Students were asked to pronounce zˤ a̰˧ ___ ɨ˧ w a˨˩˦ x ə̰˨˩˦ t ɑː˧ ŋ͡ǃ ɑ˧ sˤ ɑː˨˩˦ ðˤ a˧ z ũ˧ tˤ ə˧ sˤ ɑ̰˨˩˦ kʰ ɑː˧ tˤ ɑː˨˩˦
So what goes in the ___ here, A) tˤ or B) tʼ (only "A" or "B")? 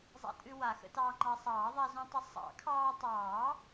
B